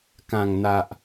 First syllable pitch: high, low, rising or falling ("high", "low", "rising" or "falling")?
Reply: low